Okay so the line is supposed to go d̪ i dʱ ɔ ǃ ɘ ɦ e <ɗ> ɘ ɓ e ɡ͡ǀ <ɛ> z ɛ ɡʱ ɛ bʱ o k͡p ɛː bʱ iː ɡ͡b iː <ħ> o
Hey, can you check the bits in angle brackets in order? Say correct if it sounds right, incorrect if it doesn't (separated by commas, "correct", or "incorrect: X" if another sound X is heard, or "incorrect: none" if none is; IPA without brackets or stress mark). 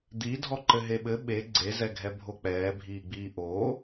incorrect: ɓ, incorrect: e, incorrect: ʔ